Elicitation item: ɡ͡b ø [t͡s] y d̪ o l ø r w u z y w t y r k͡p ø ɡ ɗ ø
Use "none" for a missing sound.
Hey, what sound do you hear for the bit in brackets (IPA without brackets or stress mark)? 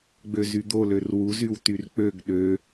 z